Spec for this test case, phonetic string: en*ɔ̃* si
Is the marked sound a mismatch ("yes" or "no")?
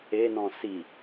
no